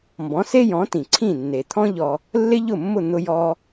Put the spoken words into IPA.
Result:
m b ɔ̃˩˥ s e˥ j ɔ̃˩˥ t ĩ˩ ǀʰ ĩ˥˩ nː e˩ t̪ʰ ɔ̃˥ ʎ ɔ˧ | lː ɪ˥ ʎ ʊ˥˩ mː ʊ˥˩ n̪ ʊ˧ j ɔ˧

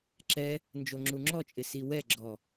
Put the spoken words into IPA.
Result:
ǁ ɛ | n d͡ʒ o ŋ͡ǁ u ŋ͡ǁ ɔ t͡ʃʼ ɪ s i w ɛ ɡ͡ǁ ɔ

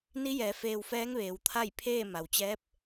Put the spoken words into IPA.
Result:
n i˧˥ j ɛː˩˧ f eː˧ w f ɛː˧˥ ŋ ʋ eː˩˧ w t̪ʰ a˥˨ j pʰ eː˥˨ m a˩ w t͡ɕ ɛː˧˥ p̚

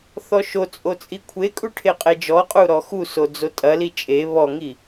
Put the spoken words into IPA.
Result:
θ ɔ ʃ o t͡sʼ o t͡sʼ i kʷʰ e kʼ u ʈʰ e qʼ e d͡ʒ ɔ qʼ u ɾ ɔ x u s o d͡z o tʼ ɐ l i t͡ʃʼ e β ɔ ŋ i

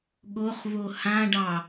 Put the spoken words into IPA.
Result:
ɠ o χ v o h ã ɖ ɑ

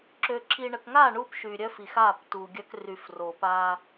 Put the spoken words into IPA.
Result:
ǁ ø˨ ǁ i˨ ɳ ə˨ k ŋ a˦˨ ɳ u˦ p ʃ y˨ ɾʲ œ˦ f i˨ x a˦˨ p t u˨ ɡʲ œ˦ k r y˨ f r o˨ p a˦

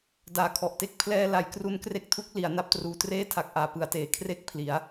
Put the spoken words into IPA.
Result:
d aː˨˩ kʰ ɔ˨˩ ʔ t e˦˥ k̚ pʰ l ɛː˧ l a˩˦ j k r u˦˥ n k r e˦˥ k̚ tʰ u˦˥ k̚ l i˩˦ a̯ n a˦˥ p̚ t r uː˧ t r eː˥˩ tʰ a˨˩ k̚ ʔ aː˩˦ p ɯ˩˦ a̯ t eː˩˦ kʰ r e˥˩ k̚ pʰ l i˩˦ a̯

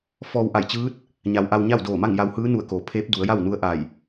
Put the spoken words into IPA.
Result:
f ɔː˧ w ʔ a˧˩ j t͡ɕ ɯː˧˥ t̚ | ɲ a˩˧ w ʔ a˧ w ɲ a˥˨ w d oː˧˩ m a˥˨ ŋ j a˧ w h ɯː˧˥ n u˧˩ ə̯ k oː˩˧ pʰ eː˧˥ p̚ d u˩˧ ə̯ j a˥˨ w n u˧˥ ə̯ ʔ a˧˩ j

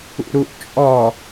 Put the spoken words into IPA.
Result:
ṵ ɾ u ʔ t͡ʃʼ ɔ

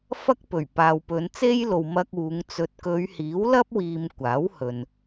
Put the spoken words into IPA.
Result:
f ɐ˥ k̚ p ɵ˨˩ ɥ p aː˨ w p ɵ˨˧ n t͡s e˥ j l o˨ w m ɐ˧ k̚ uː˨˧ ŋ t͡s ɵ˧ t̚ k ɵ˨˧ ɥ h iː˨˥ w l ɐ˥ p̚ w iː˨ m kʷ aː˨˥ w h ɵ˨ n

